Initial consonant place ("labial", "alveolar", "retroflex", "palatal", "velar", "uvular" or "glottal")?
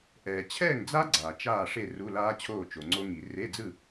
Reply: glottal